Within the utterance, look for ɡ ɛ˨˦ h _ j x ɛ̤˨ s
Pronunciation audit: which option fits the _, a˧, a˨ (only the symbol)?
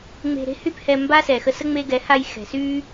a˧